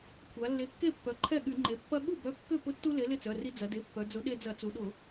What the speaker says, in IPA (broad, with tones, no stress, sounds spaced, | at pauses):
kʷʰ a˩˧ lː e˨˥ kː e˥˩ pː œ˩˧ ǃʰ ɛ˥˩ ɠ y˧˩˧ ŋ͡ǃ e˩˧ pː ɐ˦ ɠ u˥˩ b œ˨˥ kː ʏ˥˩ p ʊ˦ tː u˦ l e˨˥ l ɪ˥˩ t͡s œ˩˧˩ r i˦ d͡z ɐ˩˧ d e˩˧˩ pː œ˩˧ d͡z ʊ˨˥ ɗ e˦ d͡z ɐ˧˩˧ t͡s u˩˧ ɗ ʊ˧˩˧